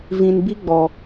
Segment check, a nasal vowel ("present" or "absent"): present